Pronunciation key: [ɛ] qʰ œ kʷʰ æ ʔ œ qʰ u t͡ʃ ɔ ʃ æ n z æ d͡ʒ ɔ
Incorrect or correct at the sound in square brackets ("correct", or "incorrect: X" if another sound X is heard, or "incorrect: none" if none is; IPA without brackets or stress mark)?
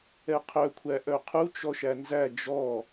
correct